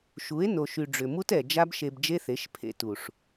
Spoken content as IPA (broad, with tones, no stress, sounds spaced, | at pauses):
ʃ u˨˦ e̯ n o˨ ʃ y˨ ɖ͡ʐ ʏ˨ m u˦ t ɛ˨ d͡ʒ a˦ b ʃ e˧ b d͡ʒ e˦ θ e˨˦ ʃ pʰ ḛ˧ t u˨ ʂ